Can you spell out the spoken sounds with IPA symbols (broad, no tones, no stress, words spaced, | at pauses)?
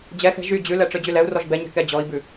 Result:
d͡ʑɛxɛ̤ ʒy d͡ʑʉlɛ ʈ͡ʂød͡ʑylɛu̯rɔʒ bɛɲɛ̤ kɛd͡ʑɔi̯bʉ